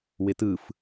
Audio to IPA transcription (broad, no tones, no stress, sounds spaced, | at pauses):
w ɪ t ɯ f